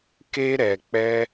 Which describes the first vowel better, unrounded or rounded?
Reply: unrounded